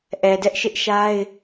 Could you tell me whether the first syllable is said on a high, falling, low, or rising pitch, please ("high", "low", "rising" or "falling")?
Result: low